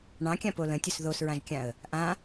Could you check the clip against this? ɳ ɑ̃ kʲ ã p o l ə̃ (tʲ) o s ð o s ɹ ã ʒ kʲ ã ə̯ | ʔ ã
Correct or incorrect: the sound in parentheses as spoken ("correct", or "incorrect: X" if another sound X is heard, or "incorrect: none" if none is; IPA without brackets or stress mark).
correct